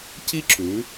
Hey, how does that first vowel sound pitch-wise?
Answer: high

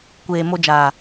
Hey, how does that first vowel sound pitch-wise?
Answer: low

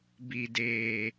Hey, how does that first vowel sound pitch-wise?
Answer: low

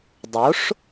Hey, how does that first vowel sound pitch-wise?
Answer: rising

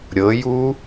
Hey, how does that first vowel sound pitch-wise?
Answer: rising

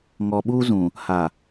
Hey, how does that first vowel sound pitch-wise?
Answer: low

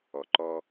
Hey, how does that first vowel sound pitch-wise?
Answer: low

